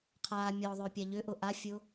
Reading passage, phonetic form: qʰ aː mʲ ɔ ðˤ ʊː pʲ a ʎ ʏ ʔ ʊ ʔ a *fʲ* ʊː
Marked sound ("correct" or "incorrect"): correct